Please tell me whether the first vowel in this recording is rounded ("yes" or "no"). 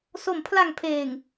yes